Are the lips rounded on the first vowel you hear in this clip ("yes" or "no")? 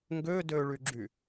yes